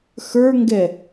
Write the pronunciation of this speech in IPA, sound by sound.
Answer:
xə˞ŋɡɛ

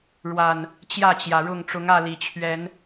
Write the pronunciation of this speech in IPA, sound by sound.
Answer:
ɻwa˨˩n | t͡ɕjä˥˨t͡ɕjä˩ɻʊ˥˨ŋ ʈ͡ʂʊ˨˦ŋä˥˨li˨˩t͡ɕʰɥɛ˨˦n

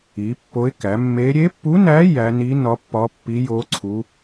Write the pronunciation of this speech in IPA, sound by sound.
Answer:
i˩˥pːo˧˥ɪ̯kæ˩˥ mːe˧˥ ɾʲe˧˥pːu˧˥næ˧˥ jæ˧˥ ni˧˥ nɒ˧˥pːɒ˧˥pːi˧˥ jo˧˥ ǀʰu˧˥

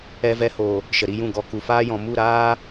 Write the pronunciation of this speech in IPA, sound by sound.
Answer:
ɛ˧vɛ˧ho˨ | ʃə˨ɾi˧jũ˦˨ ɡɔ˨ ku˨faː˦jɔ̃˨ mu˦˨ɾaː˦

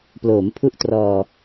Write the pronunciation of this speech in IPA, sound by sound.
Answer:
ploː˩˦mpʰu˦˥ʔtrɔː˧

